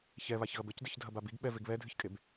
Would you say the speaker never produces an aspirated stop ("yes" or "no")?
yes